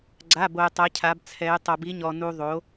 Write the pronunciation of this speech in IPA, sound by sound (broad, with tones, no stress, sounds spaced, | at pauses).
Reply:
ɡ͡ǀ a˧˥˧ b o˧ j tˤ ɛ˧˥ cʰ a˧˥ b t͡sʰ ɛ˧˥ j tˤ o˧ b i˧˥ ɲ ɔ˧ n u˧ ðˤ o˧˥